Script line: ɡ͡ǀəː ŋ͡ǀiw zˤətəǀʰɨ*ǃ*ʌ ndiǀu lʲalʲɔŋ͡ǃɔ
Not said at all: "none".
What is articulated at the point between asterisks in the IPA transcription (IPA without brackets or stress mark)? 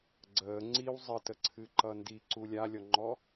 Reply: ǃ